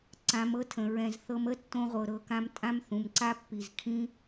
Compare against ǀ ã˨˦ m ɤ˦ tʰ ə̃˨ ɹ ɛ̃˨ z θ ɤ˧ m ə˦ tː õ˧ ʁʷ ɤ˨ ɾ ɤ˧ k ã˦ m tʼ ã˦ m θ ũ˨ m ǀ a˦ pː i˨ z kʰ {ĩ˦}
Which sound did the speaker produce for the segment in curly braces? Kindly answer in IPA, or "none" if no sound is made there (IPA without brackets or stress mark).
ĩ˦